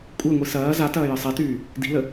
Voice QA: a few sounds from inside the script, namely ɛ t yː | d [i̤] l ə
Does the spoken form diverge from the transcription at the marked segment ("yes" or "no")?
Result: no